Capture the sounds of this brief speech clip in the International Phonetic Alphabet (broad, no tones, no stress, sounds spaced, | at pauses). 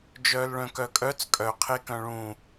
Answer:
d͡ʒ œː l ɭ œ̃ k œ kʼ œ t͡s kʼ œ qʰ e k œ̃ ɭ ũ